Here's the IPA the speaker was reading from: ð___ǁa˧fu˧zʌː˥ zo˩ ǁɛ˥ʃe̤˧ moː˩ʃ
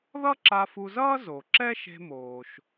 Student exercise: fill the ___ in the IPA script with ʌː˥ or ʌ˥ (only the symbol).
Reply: ʌ˥